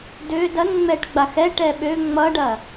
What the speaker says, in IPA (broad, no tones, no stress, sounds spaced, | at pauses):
d ø d ɐ n ŋ͡m ɛ ʈ ɡ͡b a x ɛ ʈ ɛ ɓ ø ŋ͡m ʌ ɖ ɐ